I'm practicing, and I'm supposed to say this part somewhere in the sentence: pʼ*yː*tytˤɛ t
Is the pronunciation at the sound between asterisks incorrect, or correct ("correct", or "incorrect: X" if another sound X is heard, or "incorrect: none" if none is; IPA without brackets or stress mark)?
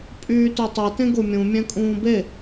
correct